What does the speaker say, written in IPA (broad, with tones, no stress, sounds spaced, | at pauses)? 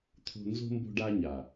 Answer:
t̪ʰ o̤˦ n z o̤˦ m b o̤˦ ɖ a˦ ɲ a˨